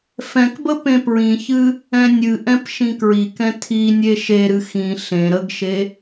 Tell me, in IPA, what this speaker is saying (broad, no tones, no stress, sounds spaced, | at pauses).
f ɛ̃ k b ə p ẽ p ɹ ĩ ç ɨ | ɛ̃ nʲ ɨ ʔ ɛ̃ p ʃ ĩ k ɹ i k ɛ̃ tʰ i nʲ e ʃ e ɾ ɨ x ĩ ɬ ẽ ɾ ə ɡ ʃ e